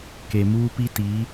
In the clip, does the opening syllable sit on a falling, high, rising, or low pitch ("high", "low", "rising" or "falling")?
low